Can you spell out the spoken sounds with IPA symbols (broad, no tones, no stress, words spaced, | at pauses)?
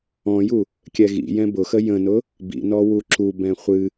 ɔ̃ju | kʲɛɣḭjɛ̃ bʊxə jə̃nʊ | bḭnɔ wuǁubɛ̃ χʷɨ